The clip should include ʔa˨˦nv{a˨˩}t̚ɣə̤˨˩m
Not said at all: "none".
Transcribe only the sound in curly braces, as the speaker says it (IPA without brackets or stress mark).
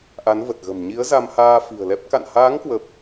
ə˨˩